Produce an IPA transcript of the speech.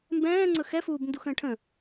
mbɛ̃ː ŋ͡ǀɵxɛfuːb nduxə̃ːʈʰə̃

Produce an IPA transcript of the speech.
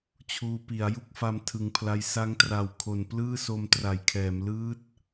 t͡ɕʰuː˧pi˩˦a̯ ju˦˥k̚fa˧m tʰɯ˨˩ŋpʰla˧j sa˦˥ŋtra˨˩w kʰo˨˩nplɯː˥˩so˧m tra˩˦jkʰɛː˩˦m lɯː˦˥t̚

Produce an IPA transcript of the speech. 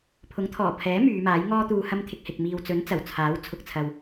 pʰʊ˨˥ŋt̪ʰɔː˨˩pʰɛː˨˥ myː˨˧maː˨˥j ŋɔː˥ t̪uː˧hɐ˥mt̪ʰɪ˧k̚hɪ˨k̚ miː˨wt͡sɵ˨˥n t͡sɐ˨˩wt͡sʰaː˨˥w t͡sʰʊ˨k̚t͡sʰɐ˨w

